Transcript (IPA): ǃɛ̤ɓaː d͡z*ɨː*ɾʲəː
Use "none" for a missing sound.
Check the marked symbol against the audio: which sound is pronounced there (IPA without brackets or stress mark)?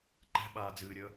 ɨː